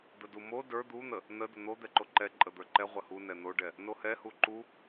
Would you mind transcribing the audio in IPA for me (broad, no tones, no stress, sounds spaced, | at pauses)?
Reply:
d̪ ə d u m o d ə˞ d̪ u n̪ ə | n ə d ə n̪ o d̪ ɛ ǃ o ǃ ɛ ǃʼ ə d̪ ə˞ ǃ ɛ ʁʷ ə h u n ɛ n̪ o ɖ ɛ | n o h ɛ h u ǃ u